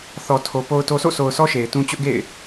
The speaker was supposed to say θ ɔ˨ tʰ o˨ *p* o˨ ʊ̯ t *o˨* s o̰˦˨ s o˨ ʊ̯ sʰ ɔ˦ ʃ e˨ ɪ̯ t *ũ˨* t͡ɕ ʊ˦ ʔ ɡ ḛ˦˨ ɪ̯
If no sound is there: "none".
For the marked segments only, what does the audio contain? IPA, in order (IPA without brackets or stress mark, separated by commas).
p, o˨, ũ˦